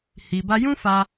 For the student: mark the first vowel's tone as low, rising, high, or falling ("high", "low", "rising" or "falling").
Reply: low